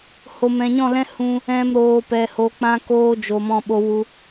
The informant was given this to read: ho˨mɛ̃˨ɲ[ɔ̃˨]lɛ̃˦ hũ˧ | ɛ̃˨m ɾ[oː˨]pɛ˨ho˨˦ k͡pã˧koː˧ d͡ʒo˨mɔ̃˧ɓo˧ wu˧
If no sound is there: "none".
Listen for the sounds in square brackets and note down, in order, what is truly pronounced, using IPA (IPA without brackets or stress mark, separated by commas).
ɔ̃˦˨, oː˨